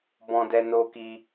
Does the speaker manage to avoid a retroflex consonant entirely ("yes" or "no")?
yes